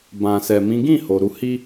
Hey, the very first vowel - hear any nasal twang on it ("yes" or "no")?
yes